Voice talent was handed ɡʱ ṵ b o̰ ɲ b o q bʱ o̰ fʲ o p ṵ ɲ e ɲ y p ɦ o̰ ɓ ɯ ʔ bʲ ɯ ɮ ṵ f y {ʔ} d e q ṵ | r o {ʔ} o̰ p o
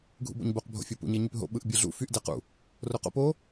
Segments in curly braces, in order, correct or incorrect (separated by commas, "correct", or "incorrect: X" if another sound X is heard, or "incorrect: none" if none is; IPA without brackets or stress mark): correct, incorrect: q